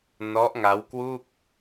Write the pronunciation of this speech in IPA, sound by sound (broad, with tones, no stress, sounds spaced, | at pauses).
n ɔ˦˥ ʔ ŋ a˦˥ w k w u˥˩ k̚